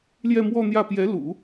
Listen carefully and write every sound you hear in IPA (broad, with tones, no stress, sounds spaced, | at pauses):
l j ɛ˥˧ m w ɔ˥˧ n̪ j ä˥˩ p j ɛ˧˥ l ṵ˨˩˦